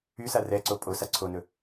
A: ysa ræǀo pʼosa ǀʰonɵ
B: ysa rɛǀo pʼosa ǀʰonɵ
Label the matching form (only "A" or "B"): B